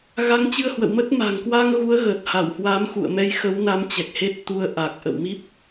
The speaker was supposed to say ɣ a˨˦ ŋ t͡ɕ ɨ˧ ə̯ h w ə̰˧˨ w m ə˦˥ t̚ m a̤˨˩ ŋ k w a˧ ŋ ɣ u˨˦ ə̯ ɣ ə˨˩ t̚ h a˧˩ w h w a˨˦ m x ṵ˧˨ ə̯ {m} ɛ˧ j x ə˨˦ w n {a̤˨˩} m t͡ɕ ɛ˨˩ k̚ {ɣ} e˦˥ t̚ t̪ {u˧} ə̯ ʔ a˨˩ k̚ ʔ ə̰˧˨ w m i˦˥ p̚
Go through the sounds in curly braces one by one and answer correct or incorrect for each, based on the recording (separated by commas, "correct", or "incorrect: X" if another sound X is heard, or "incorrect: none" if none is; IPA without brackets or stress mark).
correct, incorrect: a˨˦, incorrect: h, correct